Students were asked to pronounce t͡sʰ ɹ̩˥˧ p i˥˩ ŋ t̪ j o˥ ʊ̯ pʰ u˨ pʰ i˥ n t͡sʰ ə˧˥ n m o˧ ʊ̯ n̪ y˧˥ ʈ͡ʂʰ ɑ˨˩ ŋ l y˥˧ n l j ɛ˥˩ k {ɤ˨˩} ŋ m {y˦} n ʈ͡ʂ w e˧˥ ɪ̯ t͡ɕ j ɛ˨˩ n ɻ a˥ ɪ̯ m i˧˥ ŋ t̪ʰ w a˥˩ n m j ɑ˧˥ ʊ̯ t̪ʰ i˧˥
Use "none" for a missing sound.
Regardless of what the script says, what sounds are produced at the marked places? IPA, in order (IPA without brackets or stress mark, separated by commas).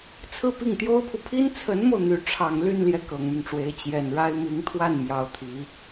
ɤ˨˩, y˦